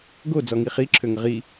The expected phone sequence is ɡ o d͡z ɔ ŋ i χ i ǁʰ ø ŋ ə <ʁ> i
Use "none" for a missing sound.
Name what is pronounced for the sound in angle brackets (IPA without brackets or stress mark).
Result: ʁ